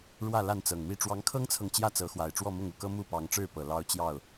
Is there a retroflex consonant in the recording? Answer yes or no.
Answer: yes